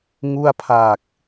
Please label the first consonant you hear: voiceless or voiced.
voiced